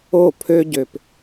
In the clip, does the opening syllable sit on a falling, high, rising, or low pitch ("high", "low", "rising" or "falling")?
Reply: falling